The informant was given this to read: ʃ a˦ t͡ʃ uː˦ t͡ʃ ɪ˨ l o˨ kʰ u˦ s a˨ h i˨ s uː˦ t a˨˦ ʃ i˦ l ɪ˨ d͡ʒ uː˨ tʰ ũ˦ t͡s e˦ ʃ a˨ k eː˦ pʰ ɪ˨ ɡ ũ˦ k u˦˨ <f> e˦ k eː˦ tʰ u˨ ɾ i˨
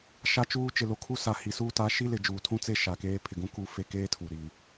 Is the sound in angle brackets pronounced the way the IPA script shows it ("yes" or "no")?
yes